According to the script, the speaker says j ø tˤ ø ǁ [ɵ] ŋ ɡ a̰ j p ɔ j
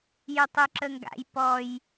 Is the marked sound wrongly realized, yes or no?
yes